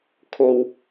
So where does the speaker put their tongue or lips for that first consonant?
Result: velum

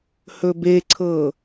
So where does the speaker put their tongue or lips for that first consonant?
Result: throat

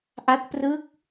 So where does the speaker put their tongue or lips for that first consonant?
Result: throat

